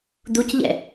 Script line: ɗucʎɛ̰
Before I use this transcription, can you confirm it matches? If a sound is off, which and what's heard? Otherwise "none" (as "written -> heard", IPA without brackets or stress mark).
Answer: ɗ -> d̪